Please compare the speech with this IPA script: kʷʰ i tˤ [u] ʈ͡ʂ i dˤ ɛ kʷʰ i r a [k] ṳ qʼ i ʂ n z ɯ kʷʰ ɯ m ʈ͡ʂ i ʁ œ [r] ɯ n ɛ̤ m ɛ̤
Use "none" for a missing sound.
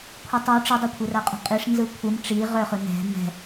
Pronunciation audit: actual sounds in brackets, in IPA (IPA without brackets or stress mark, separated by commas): u, qʼ, χ